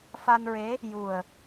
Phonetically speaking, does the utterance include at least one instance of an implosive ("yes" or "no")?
no